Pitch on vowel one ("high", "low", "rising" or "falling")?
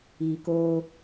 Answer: low